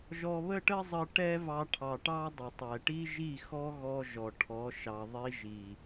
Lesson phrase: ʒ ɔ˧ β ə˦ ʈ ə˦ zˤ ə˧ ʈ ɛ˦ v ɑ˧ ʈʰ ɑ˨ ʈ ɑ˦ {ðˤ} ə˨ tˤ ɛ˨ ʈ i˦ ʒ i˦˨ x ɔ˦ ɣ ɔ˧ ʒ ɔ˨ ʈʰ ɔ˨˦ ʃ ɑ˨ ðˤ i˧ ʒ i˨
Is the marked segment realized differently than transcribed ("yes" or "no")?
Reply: yes